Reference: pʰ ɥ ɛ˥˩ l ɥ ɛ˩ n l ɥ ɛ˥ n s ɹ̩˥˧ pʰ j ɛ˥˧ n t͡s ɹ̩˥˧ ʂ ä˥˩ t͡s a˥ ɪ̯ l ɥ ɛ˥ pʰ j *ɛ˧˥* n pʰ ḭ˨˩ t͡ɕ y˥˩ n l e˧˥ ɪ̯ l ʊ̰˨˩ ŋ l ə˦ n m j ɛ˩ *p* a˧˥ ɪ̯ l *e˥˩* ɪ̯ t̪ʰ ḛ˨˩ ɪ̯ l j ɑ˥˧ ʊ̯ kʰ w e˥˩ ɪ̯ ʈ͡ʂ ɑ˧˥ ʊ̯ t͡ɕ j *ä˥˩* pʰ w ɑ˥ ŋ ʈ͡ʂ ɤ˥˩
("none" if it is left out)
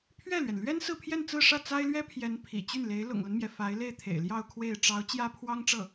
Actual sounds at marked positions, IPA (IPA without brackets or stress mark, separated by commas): ɛ˧˥, f, e˥˩, ä˥